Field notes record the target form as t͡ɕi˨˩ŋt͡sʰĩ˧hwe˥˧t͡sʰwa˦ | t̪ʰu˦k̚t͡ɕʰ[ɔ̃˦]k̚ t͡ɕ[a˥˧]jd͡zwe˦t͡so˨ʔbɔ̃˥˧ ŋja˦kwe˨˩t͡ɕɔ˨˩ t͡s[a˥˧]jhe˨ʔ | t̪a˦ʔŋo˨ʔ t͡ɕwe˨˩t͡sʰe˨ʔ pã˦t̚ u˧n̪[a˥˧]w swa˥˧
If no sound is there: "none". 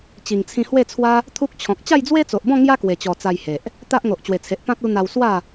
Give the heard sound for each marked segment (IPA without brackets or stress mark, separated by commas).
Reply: ɔ̃˨, a˥˧, a˧, a˧